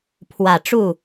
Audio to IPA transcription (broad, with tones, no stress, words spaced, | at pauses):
pʰwä˨˩ʈ͡ʂu˥˨